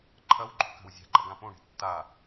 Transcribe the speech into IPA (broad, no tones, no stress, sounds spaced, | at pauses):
ǃʰ ɐ w ɡ͡ǃ o̤ k a̤ w zʲ a̤ ɡ͡ǃ ɐ ɡ ã p õ ɳ e̤ tː a